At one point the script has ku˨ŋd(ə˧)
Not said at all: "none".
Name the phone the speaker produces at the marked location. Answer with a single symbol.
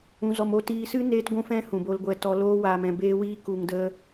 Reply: ə˧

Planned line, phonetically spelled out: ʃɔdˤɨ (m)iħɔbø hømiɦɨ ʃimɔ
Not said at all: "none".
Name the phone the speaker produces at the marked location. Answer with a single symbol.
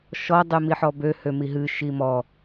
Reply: m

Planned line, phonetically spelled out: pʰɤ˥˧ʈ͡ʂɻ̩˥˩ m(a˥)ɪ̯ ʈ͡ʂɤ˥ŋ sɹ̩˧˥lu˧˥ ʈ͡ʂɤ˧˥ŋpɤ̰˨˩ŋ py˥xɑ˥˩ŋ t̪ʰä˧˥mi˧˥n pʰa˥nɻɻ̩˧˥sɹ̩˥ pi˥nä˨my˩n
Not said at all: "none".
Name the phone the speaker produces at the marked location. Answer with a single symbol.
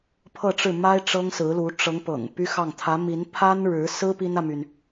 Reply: a˥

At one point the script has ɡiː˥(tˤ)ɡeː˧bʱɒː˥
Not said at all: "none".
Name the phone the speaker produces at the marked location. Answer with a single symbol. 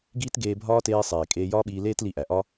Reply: t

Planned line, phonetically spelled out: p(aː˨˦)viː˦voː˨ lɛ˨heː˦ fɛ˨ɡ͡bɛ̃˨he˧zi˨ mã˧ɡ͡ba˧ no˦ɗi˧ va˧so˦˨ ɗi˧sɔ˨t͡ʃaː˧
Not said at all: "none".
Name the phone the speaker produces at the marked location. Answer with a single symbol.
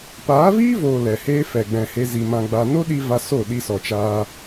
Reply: aː˨˦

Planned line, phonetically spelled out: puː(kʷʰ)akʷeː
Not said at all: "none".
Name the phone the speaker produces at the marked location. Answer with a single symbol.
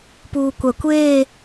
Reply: kʷ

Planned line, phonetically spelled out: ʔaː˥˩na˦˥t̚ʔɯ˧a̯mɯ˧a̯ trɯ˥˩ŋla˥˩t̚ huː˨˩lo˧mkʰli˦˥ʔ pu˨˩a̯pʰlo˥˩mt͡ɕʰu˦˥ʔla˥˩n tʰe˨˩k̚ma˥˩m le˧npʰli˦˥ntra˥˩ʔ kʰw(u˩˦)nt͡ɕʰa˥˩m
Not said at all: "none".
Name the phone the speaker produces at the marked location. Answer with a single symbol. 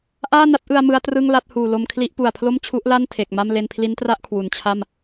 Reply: u˩˦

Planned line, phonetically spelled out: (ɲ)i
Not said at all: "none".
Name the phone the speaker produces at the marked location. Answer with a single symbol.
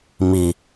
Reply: m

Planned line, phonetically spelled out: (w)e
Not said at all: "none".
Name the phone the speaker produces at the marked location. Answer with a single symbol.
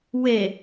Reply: w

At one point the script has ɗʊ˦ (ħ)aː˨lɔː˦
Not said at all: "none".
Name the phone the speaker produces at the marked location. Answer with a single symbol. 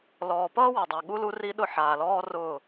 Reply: ħ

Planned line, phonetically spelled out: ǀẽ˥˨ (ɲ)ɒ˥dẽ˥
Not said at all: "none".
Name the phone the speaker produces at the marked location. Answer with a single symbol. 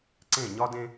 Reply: ɲ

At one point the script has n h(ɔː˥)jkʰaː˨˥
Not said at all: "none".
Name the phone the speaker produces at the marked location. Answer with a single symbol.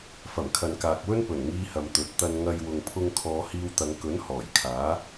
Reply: ɔː˨˩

